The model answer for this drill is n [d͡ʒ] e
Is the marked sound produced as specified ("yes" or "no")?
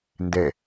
no